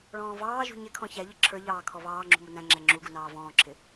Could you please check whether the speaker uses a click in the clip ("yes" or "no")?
yes